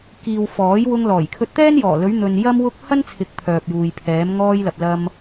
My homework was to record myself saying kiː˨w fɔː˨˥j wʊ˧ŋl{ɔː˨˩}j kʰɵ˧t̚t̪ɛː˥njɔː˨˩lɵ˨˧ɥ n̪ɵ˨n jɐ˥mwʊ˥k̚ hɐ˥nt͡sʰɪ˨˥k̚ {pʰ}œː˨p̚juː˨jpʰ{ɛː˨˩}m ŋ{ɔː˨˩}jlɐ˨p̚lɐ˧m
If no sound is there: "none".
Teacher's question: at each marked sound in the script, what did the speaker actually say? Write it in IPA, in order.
ɔː˨˩, pʰ, ɛː˨˧, ɔː˧

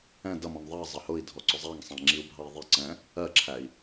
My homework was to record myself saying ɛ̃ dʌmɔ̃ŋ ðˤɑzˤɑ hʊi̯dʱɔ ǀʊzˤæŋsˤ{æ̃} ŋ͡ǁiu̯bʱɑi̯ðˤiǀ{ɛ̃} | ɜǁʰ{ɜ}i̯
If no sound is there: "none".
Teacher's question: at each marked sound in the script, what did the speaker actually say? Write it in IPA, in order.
æ̃, ɛ̃, æ

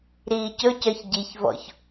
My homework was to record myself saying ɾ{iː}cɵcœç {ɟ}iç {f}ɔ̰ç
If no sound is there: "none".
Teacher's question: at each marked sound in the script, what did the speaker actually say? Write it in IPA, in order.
iː, ɟ, v

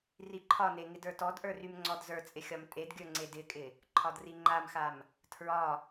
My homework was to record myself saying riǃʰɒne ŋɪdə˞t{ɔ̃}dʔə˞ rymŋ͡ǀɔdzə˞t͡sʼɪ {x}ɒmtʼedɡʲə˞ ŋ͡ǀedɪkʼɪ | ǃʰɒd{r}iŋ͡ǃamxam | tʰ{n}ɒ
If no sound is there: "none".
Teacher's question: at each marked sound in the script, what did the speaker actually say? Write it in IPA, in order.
ɔ, xʲ, r, ɹ

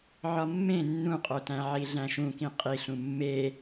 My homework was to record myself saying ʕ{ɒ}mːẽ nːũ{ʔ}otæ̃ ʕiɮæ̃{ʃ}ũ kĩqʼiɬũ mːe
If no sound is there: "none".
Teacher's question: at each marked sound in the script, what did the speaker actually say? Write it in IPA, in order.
ɒ, qʼ, ʃ

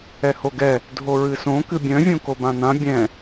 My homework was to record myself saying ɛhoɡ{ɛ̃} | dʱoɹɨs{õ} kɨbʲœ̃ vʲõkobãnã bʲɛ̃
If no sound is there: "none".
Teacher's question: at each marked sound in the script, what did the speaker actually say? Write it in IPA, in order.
ɛ, õ

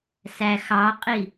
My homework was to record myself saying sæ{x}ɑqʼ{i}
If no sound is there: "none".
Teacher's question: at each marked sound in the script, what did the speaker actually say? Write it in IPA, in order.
x, i

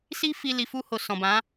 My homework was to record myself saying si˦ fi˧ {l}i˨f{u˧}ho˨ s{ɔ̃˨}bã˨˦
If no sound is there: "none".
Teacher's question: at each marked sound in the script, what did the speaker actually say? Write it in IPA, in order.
l, u˧, ɔ̃˨

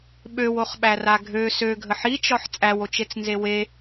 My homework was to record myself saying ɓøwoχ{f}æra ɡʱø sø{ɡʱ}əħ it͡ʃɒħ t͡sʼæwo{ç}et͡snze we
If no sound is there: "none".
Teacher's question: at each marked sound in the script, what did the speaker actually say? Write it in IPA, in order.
ɓ, ɡʱ, t͡ʃ

